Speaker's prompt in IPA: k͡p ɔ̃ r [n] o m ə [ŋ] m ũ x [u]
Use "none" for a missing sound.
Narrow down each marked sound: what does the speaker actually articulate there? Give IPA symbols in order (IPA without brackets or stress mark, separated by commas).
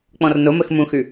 n, x, ʉ